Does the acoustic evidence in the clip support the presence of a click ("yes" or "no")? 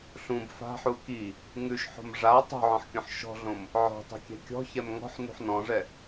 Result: no